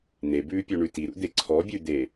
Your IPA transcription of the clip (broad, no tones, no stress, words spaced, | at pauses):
n̪ebʉːpʲoɳʉ tiɾṵd̪e ǀʰɔbʲʉd̪e